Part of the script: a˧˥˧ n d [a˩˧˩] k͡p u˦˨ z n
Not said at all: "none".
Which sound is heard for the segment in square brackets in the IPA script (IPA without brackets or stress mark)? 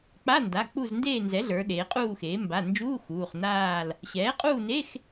a˩˧˩